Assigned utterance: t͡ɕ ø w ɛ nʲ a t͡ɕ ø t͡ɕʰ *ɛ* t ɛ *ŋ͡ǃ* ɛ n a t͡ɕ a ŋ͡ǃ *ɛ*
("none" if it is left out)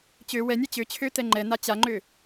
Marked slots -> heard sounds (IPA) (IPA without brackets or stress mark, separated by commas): ø, ŋ͡ǃ, ø